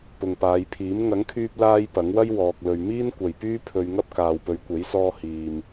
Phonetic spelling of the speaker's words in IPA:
p ʊ˨ ŋ p aː˨˧ j pʰ iː˨˥ m ŋ ɐ˨˥ ŋ kʰ yː˧ p̚ l aː˧ j p ɐ˨˥ ŋ w ɐ˥ j w ɔː˨ k̚ l ɵ˨ ɥ m iː˥ n kʷ ɐ˨ j p yː˥ pʰ ɵ˧ ɥ ŋ ɐ˥ p̚ k aː˨ w p ɵ˨˧ ɥ kʷ e˨˥ j s ɔː˧ h iː˨ m

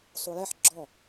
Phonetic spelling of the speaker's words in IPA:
sˤ u j ɛ ħ ɡ͡ǁ ɔ

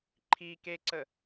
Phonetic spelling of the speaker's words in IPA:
ǃʰ i k e ǀ ə

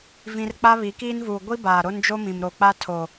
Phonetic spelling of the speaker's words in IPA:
v ĩ˦ r k͡p a˦ β i˨˦ k iː˦ n v uː˨ ɡʷ i˦ b aː˨ ɾ o˦ n d͡ʒ o˦ m ĩ˨ m ɾ o˨ k͡p a˦ tʰ o˨

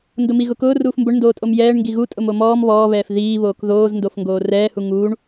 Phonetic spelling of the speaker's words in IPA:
n d ʊ m i ɣ ʊ k ʊː r uː f m b ʊ ɳ n d oː tʼ o m j ɛː ɳ ŋ ɡ i ɣ u tʼ ʊ m o m ɔː m β ɔː β ɛː f ð iː β oː k ð oː z n d o f ŋ ɡ oː r ɛː h u ŋ uː ɳ

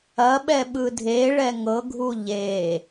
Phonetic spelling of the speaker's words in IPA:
ɐ ɓ ɛ ɓ ɯ dʱ e ɭ ɛ ŋ ɤ ɡʱ u ʎ e

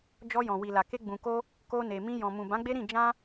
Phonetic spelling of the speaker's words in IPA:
d͡ʒ ɔ˧ j ɔ̃˨ w i˨ l a˨ k e˧ ɡ͡b ũ˨ k o˧ | k o˧ n e˨ m ĩ˧ j ɔ̃˨ m ũ˨ b ã˨˦ ɡ͡b e˦ ɾ ĩ˦˨ d͡ʒ ã˧

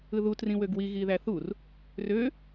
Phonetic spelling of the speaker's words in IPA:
ɯ ð u t r ĩ w ø ɡ w i ɣ i ð æ θ u r | r ø

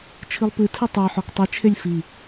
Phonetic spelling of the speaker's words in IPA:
t͡ʃʰ ɨ lˠ p ɨ tʰ ɨ tˤ ə˞ ħ ɔ k tˤ ɨ t͡ʃʰ e lʲ f i

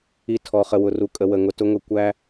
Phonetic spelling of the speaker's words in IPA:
i˨ tʰ ɔ˨ χ ə˨ w ʊ˨ r u˨ kʼ ə˨ w ə˨ ŋ ʊ˨ t ʊ˨ ŋ ʊ˨ kʷ æ˦

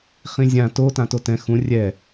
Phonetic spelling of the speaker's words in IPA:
χ ĩ zʲ ã t o t ã t o t ɛ̃ x ũ rʲ ɛ

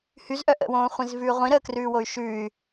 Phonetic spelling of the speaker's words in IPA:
h y z ʔ œ ʔ ə̰ w õː χʷ ĩ z v ʉː ʁʷ ĩ ɾ əː k r ʉː w o y̯ ʃ ʉ y̯

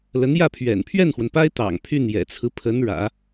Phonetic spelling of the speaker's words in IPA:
l ə˧˥ n j ä˥˩ pʰ ɥ ɛ̰˨˩ n pʰ ɥ ɛ˥˩ n x w ə˩ n p a˥ ɪ̯ t̪ ɑ̰˨˩ ŋ pʰ y˥˩ n j ɛ̰˨˩ t͡sʰ ɹ̩˦ pʰ ə˧˥ n ɻ ä̰˨˩˦

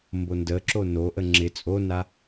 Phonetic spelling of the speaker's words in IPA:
m b o n d ə ǁ o n o ʔ ə ŋ͡ǁ ɪ t͡sʼ o n a

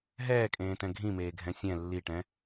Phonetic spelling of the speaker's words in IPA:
ɦ ɛː kʼ ẽː t ɛ̃ ɡʱ ĩ m eː ɡʱ ɛ̃ sʲ ɛ̃ lː i ʈ ɛ̃

